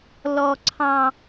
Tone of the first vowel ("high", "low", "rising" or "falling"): high